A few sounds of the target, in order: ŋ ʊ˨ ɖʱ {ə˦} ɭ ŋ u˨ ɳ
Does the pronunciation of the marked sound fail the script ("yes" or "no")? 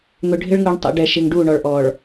yes